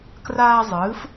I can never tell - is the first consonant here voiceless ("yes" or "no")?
yes